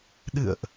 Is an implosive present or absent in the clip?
present